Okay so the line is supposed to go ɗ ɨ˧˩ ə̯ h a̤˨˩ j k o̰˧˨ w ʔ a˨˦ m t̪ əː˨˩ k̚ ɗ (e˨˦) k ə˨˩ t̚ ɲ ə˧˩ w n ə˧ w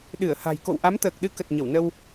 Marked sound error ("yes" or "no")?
yes